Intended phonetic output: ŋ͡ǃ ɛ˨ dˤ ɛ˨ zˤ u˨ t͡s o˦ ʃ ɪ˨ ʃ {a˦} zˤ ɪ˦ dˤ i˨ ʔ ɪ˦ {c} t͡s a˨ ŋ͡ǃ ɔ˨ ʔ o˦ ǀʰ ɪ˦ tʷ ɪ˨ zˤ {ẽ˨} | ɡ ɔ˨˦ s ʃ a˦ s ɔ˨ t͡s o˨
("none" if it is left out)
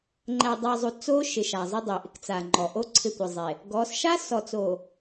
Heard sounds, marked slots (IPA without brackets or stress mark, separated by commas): a˨, k, e˨